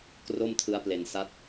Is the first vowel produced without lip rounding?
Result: no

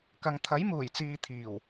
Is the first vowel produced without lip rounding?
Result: yes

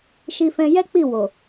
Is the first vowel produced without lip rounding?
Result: yes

